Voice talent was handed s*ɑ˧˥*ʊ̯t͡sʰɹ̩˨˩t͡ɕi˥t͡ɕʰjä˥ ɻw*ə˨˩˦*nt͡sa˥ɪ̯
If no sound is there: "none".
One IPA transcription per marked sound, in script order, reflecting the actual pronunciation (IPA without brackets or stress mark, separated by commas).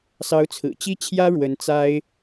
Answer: ɑ˧˥, ə˧˥